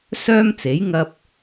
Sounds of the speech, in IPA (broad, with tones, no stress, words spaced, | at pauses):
sœː˥mt͡se˨˥j ŋɐ˧p̚